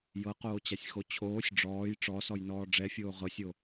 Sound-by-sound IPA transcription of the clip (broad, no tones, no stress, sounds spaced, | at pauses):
j ɤ q oː t͡ɕ a sʲ x o t͡ɕʰ oː sʲ ɖ͡ʐ ɔː j ʈ͡ʂ ɔ s ɔ j n ɔː ɖ͡ʐ ɛ fʲ oː ʁ ɤ sʲ o